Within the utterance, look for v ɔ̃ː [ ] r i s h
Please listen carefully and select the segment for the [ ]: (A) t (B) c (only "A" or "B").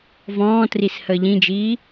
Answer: A